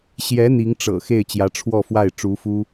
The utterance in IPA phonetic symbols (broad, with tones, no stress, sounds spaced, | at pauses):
ɕ j ɛ˧˥ n̪ i˧˥ ŋ ʈ͡ʂ ɤ̰˨˩ x e˥˩ ɪ̯ t͡ɕ j ä˧˥ ʈ͡ʂʰ w ɔ˥˧ f w a˥˩ ɪ̯ ʈ͡ʂ u˧˥ f u˥